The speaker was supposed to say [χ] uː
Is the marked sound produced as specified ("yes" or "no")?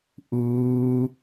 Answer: no